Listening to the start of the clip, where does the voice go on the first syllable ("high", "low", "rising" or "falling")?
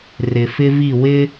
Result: low